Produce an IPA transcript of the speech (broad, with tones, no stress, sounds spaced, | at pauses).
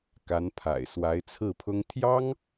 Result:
k a˧˥ n pʰ a̰˨˩ ɪ̯ s w a˧˥ ɪ̯ t͡sʰ ɹ̩˥˩ pʰ ʊ˥ ŋ t̪ʰ j ɑ˥ ŋ